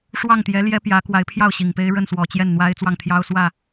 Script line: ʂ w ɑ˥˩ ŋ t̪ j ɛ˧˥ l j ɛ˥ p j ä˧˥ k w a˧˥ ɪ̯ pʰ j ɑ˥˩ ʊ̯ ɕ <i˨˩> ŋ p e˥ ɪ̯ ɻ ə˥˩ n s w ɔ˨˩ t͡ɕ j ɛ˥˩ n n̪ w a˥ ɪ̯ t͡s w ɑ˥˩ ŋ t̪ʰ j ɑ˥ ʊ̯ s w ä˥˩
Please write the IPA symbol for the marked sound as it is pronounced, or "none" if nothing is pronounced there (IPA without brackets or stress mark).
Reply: i˨˩